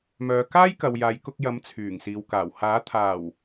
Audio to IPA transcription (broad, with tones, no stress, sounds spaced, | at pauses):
m œː˨˧ k aː˥ j k ɐ˨ w j aː˨˧ j k ʊ˧ k̚ j ɐ˨˥ m t͡sʰ yː˨˩ ŋ s iː˨ w k aː˨˩ w h aː˨˥ t̪ʰ aː˨˩ w